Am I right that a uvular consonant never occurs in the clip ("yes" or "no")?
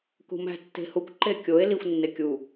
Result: yes